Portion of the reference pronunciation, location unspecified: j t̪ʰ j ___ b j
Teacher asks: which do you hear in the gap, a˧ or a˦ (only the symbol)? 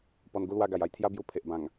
a˦